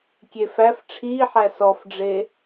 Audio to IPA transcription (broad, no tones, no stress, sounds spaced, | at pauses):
kʲ e f æ f ʈ͡ʂʰ iː ħ æ s ɔ f ɖ͡ʐ e